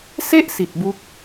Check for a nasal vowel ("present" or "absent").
absent